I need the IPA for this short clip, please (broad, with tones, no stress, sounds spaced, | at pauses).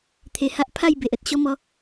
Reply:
t̪ʰ e˨˩ h a˦ ʔ pʰ a˥˧ j b e˨ ʔ ə˨ t̚ ɕ ɔ˦ m ɔ˧